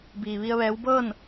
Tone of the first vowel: low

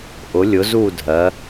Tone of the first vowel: rising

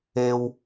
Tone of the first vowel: high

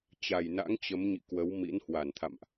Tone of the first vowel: low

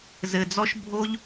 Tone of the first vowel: low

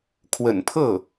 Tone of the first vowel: low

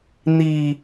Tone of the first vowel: low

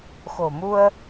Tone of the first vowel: low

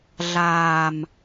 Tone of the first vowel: low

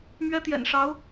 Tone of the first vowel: high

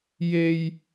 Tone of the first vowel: high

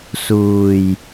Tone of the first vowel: low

